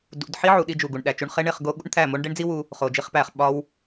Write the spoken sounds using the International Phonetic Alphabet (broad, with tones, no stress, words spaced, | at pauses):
dṵ˧d ħi˦ʕu˨ɗi˧ d͡ʒu˨ɡu˨ɳɗæ˨t͡ʃu˧ɳ χe˦ɳe˧χ ɡo˦ ɠṵ˦ɳt̪ʰæ˦˨mo˦ɳ ɖe˦ɳd͡zi˦wu˧ | χo˨d͡ʒi˧χpæ˨χ ɓɒ˦w